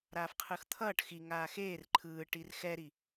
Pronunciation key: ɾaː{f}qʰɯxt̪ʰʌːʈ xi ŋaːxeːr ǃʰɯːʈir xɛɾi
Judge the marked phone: correct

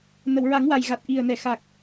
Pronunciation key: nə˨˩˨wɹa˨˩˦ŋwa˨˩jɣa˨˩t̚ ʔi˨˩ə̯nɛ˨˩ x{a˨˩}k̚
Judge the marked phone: correct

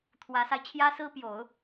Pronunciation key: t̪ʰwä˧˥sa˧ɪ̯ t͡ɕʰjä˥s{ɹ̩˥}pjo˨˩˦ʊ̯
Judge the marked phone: correct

